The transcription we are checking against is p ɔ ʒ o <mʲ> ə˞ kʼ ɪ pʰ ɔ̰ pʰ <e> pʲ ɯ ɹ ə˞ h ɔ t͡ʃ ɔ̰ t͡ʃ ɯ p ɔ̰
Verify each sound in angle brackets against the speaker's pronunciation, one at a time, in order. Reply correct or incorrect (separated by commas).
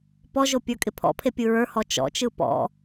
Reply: incorrect, correct